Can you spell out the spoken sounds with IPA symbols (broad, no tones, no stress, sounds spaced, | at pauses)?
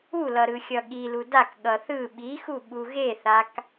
u l ʌ ɾ ɯ xʲ ʌ ɠ i l u d a k ɠ ʌ θ ɯ ɓ i x u ɓ u ɣ e θ a k